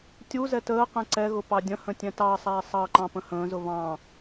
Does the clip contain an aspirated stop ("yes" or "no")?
no